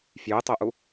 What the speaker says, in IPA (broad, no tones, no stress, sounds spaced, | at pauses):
f j ʉ tˤ u ʔ u